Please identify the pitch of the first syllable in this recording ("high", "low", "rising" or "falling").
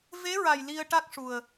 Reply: rising